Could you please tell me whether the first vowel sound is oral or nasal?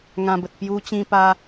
nasal